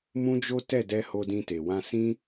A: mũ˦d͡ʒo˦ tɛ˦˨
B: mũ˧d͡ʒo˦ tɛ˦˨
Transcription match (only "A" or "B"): A